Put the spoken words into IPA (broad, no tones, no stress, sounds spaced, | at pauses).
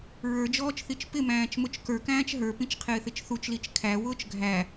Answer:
ɹ ə˞ d͡ʒ ɔː t͡ʃ θ i t͡ʃ p ɪ m æ̃ː t͡ʃ m ʊ t͡ʃ k ə˞ k æ̃ː t͡ʃ ɦ ə˞ p ĩ t͡ʃ qʰ ɪː θ ɪ t͡ʃ θ u t͡ʃ l i t͡ʃ kʰ æ w ʊː t͡ʃ ɡʱ æ